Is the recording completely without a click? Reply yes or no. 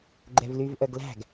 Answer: no